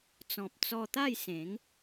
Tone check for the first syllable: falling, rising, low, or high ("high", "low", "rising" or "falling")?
low